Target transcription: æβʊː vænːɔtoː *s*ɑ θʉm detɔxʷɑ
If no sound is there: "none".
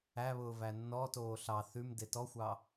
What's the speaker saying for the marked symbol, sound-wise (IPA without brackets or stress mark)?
ɬ